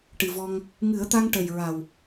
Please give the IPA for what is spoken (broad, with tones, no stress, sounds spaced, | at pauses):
ʈ ɨ˨˩ v ɔ˧ ŋ | ŋ ɨ˨˩˦ ə̯ t̪ a˧ ŋ ʈ ə˨˩ j ɹ a˨˩ w